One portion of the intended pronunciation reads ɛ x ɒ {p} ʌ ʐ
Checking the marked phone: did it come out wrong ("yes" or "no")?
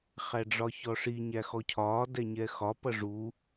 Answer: no